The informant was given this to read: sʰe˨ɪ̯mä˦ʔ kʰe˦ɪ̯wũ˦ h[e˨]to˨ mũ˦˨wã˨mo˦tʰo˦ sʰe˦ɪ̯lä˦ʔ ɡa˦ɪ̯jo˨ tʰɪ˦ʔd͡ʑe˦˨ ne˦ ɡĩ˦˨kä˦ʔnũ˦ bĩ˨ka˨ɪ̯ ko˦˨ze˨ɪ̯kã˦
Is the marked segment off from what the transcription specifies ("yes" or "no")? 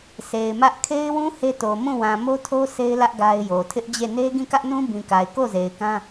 yes